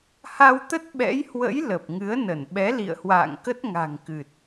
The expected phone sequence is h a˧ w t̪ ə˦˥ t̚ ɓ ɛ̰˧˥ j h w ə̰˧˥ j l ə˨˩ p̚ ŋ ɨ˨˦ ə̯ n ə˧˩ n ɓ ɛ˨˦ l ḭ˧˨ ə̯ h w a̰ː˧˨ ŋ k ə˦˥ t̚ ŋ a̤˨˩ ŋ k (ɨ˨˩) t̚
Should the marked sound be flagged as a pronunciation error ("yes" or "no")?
no